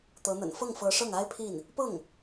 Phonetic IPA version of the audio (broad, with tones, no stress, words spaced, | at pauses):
t̪ɤ˧˥n̪ə̰˨˩n fɤ˥˩ŋfɤ˧˥ ʂɤ˥˩ŋa˥ɪ̯pʰi˥˩n | pɤ˥˩ŋ